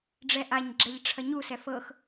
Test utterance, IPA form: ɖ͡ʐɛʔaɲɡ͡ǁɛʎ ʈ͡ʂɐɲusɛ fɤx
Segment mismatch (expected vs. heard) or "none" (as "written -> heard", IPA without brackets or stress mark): ʈ͡ʂ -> ʈ͡ʂʰ